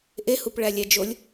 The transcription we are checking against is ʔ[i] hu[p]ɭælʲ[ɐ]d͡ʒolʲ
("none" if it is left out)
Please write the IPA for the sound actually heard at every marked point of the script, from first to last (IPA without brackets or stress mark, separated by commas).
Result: e, p, æ